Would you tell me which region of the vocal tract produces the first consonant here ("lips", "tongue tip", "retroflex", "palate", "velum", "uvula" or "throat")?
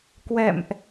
velum